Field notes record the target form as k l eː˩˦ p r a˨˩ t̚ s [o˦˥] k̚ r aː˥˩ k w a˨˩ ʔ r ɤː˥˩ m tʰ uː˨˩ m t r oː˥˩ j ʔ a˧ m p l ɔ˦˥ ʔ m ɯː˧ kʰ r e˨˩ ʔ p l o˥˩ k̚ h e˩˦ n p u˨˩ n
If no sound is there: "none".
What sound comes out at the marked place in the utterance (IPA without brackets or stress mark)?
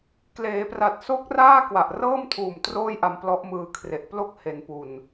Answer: o˦˥